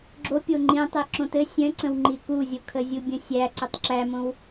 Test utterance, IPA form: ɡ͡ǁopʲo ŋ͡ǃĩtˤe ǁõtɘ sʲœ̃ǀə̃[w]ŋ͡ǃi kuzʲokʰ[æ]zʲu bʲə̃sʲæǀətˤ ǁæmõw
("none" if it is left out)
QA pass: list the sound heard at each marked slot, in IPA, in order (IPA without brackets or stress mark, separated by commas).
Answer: w, ə